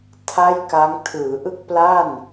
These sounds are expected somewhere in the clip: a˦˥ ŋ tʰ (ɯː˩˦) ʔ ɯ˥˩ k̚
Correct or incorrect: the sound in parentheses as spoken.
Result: correct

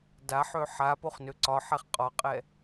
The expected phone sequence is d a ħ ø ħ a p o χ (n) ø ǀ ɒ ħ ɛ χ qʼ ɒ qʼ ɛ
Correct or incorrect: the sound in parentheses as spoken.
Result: correct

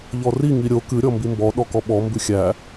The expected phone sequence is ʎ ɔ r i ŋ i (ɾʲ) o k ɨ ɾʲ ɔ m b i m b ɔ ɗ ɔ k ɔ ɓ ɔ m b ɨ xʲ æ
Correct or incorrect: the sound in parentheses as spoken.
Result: correct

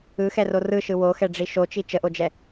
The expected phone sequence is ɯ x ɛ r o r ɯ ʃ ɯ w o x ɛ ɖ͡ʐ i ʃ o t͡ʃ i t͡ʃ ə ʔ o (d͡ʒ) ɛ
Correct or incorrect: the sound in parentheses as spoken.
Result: correct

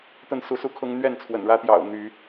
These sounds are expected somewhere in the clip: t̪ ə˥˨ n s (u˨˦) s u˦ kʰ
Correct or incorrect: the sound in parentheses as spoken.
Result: correct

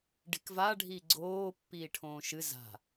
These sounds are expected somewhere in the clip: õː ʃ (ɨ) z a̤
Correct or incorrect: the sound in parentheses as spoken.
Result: correct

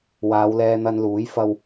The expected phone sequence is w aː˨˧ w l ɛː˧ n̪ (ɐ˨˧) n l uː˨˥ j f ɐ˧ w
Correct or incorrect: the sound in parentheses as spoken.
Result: incorrect: ɐ˧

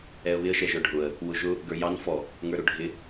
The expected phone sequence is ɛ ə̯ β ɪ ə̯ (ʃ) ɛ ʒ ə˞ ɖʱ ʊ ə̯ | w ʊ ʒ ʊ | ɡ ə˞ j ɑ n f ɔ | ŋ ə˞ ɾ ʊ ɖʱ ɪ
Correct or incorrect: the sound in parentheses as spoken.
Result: correct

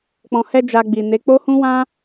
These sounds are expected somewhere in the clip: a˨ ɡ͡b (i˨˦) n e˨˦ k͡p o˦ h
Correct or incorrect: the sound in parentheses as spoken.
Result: incorrect: i˨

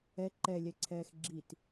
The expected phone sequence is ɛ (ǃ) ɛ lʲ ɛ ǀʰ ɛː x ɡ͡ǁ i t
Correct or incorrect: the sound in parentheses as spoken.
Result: correct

